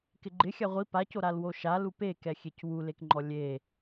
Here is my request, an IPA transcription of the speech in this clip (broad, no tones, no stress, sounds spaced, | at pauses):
k ɪ ɡ͡ǃ ɪ xʲ a ʁʷ i p a c o ɾ a l w o ʃ a l u p e k ɛ xʲ e c w u l e k ŋ͡ǃ ɔ lʲ e